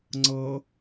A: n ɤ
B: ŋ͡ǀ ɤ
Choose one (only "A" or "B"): B